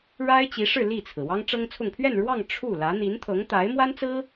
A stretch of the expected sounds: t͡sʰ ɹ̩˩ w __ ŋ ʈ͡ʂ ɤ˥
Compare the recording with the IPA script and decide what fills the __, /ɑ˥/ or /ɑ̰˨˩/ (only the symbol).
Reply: ɑ˥